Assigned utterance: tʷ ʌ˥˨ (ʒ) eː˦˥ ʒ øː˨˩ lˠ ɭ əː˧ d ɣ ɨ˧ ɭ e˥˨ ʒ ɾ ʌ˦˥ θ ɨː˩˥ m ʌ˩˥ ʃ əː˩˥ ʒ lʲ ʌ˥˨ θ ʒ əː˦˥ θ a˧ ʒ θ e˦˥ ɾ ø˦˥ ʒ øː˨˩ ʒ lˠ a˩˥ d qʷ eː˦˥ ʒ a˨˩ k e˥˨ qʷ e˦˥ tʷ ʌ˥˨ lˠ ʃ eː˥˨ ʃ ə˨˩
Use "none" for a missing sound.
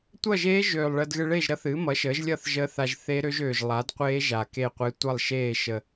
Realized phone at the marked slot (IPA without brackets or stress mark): ʒ